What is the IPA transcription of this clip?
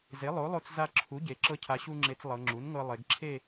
z e˩˥ lˠ o˩˥ lˠ o˧ t͡s z a˧ ǁʰ u˩˥ ɟ e˩˧ ǁ ɤ˧ cʰ a˩˧ ɕ u˧ ŋ͡ǁ e˩˧ t͡s lˠ ɤ˩˧ ŋ͡ǁ u˩˥ n ŋ ɤ˧ lˠ e˩˧ ɡ ǁʰ e˥˧

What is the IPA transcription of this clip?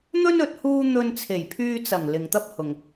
n̪ ɵ˥ n ɵ˨˥ t̚ h uː˥ n̪ ɵ˧ n t͡sʰ e˨˩ j pʰ yː˧ t͡s ɐ˨˩ ŋ l ɪ˨ ŋ t̪ ɐ˥ p̚ h ʊ˨ ŋ

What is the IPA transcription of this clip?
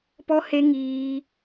p ɔ˦ h e˦ ŋ iː˦

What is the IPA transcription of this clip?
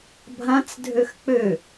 bʱ ã t͡s dʱ ø x k͡p ø

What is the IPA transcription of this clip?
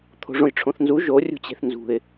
t̪ʰ o̤ ʐ õ j ʈ͡ʂʰ õ θ n z u ʒ o rʲ ṳ t͡ɕ e̤ θ n z ṳ ɪ̯

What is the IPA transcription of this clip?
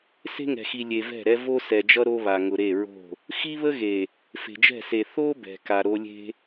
s e̤˦ ŋ ɛ̤˨ x i˨ lʲ e˨ v ɛ̤˦˨ ɾ ɛ˦ v o˦ s ɛ˨ d͡ʒ ʌ˦ ɾ o˦ β a˨ ŋ ʊ˨ ɾ e˦˨ ɹ o̤˦˨ | x i˦ β ə˦ ɣ e˨ | f e̤˨ d͡ʒ ɛ̤˦˨ s e˨ θ o˦ b ɛ̤˨ k a˨ ɾ o˦ lʲ e̤˦

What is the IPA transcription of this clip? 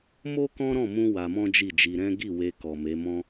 m o˦ k ɔ̃˦ ɾ ɔ̃˦˨ m ũ˧ w a˧ m ɔ̃˦ d͡ʒ i˦˨ d͡ʒ i˧ ɾ ɛ̃˦ ɡ i˦˨ w e˧ k ɔ˨ m e˨˦ m ɔ̃˦

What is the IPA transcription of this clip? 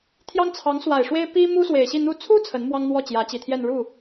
t̪ʰ j ɑ˥ ŋ t͡sʰ ɑ˧˥ ŋ s w a˨˩ ɪ̯ ʂ w e˥ ɪ̯ p i˥ m u˥ s w e˨˩ ɪ̯ ɕ i˥˧ n̪ u˥˩ t͡sʰ u˥ t͡sʰ ə˧˥ n m w ɑ˥ ŋ n̪ w ɔ˥˩ t͡ɕ j ä˧˥ t͡ɕ i˨˩ t̪ʰ j ɛ˥˧ n ɻ u˥˩

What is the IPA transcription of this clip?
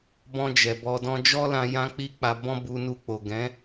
b ɔ̃˧ d͡ʒ ɛ˨ b ɔ˧ d ɔ̃˦ d͡ʒ ɔ˦ l ã˧ j ã˦ k͡p i˦ k͡p a˧ b ɔ̃˦ b u˧ n u˧ k͡p o˨ ɡ ɛ̃˨˦

